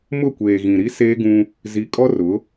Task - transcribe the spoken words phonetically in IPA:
mʊ˦˨kʷeː˨ɣĩ˨ ɾi˦seː˦ɡũ˦ | zi˨˦kʼɔ˦rʊ˨˦

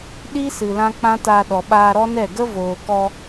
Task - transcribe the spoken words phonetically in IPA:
ɗi˦sɨ˨ lã˦k͡pã˦ta˧ ɗɔ˨ɓaː˧ɾɔ˦ nɛ˦˨ ɡə˦voː˨kɔ˧

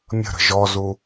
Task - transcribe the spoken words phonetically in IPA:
mʲə̤ɾə̤ ʒɔzu

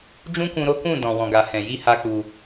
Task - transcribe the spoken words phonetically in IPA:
d͡ʒũ˦kũ˧ ɾo˦kũ˦˨ dɔ̃˨wɔ̃˨ɡa˨ hɛ̃˨ji˧ ha˦k͡pu˧

